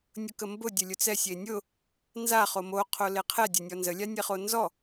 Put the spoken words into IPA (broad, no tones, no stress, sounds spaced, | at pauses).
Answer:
nʲ ʊ k ə m b ʊ dʲ ə lʲ ʊ t͡s ɛ sʲ e nʲ ʊ | n z a χ o m o qʰ o l e qʰ ɛ dʲ ɛ nʲ ɔ n z ə lʲ a nʲ ɛ χ o n z ɔ